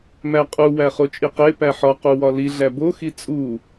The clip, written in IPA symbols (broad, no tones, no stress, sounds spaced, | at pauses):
m æ qʼ u w æ χ o t͡ʃʼ i q e p æ ħ ɒ q u w ɒ l i ɮ æ b o x i t͡sʼ u